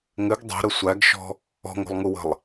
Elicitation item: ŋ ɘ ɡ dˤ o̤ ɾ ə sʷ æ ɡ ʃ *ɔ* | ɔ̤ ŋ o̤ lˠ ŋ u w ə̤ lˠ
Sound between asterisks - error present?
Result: yes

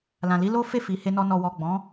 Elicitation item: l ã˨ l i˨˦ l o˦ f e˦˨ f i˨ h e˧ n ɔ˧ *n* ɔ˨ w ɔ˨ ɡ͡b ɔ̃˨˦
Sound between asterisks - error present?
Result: no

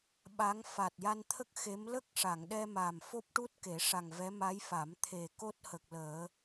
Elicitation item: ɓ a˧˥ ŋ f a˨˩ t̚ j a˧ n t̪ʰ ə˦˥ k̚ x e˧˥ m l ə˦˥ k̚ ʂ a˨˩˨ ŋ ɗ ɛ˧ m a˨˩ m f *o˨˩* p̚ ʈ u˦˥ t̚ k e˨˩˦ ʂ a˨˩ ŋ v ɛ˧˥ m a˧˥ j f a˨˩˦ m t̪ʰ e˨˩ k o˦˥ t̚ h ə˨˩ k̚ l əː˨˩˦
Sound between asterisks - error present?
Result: yes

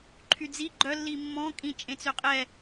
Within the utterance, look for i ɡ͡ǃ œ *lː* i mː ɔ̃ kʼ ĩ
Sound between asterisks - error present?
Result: no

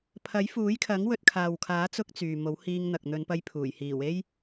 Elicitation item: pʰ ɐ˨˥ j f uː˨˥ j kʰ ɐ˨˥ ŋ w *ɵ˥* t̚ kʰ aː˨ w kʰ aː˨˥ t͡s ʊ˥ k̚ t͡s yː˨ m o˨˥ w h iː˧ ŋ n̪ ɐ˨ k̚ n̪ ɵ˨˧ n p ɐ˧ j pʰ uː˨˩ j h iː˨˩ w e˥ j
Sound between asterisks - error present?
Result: yes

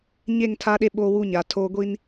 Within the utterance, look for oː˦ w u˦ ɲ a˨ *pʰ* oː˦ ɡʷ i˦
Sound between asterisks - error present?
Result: yes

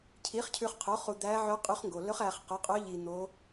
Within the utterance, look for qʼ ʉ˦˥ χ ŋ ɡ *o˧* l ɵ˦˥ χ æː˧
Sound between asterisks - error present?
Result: no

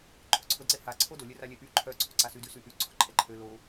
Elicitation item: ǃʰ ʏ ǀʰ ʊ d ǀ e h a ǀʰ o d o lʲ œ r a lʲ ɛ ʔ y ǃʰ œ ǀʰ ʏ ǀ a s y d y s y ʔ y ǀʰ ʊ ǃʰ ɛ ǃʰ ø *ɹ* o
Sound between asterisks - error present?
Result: yes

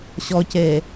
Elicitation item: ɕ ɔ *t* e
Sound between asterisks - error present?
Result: yes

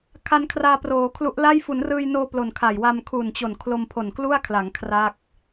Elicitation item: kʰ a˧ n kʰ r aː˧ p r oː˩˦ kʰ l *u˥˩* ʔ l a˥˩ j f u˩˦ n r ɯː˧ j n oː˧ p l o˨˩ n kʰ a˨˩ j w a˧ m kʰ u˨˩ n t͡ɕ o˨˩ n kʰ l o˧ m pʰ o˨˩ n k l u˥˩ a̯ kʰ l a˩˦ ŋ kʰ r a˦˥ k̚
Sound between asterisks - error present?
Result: yes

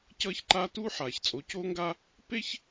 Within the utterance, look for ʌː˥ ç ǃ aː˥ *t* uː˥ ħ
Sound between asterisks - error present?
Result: no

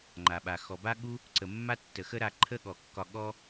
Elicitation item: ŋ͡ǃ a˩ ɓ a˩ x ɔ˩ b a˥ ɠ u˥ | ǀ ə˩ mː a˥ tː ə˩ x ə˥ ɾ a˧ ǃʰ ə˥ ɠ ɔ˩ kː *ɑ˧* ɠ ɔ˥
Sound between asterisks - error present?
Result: yes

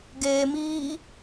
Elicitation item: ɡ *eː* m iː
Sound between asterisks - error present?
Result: no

